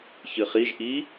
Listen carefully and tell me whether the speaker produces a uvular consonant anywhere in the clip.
yes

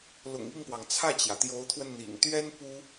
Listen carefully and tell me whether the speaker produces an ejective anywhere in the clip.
no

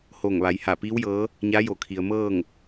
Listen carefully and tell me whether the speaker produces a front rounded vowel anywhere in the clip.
no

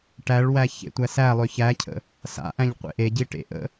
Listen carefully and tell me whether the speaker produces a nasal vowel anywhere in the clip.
yes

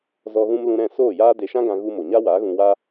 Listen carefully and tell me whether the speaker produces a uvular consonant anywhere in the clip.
no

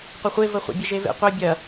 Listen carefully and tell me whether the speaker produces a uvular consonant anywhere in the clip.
yes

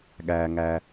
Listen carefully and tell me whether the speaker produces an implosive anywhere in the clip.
yes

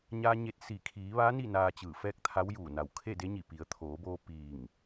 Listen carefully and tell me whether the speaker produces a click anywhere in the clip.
no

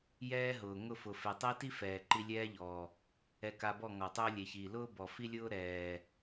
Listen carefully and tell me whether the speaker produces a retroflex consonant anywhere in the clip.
no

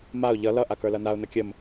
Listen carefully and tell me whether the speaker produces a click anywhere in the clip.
no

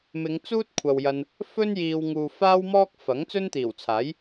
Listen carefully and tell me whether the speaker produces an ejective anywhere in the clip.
no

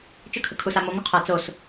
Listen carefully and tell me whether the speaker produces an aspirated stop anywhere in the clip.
yes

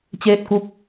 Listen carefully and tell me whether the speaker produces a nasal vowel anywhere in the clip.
no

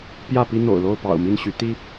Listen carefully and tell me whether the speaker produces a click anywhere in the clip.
no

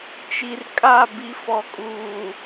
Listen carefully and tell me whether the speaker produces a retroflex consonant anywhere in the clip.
no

